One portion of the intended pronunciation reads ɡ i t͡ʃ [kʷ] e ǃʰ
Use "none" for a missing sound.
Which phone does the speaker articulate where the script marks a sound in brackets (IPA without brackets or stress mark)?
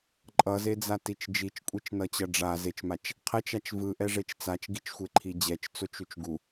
xʷ